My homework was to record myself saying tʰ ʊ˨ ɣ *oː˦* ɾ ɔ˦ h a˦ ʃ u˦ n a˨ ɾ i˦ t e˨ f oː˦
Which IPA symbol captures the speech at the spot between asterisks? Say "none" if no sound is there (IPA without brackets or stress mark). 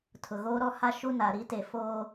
oː˦